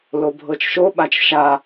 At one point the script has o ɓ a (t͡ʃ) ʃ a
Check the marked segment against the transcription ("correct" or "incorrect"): correct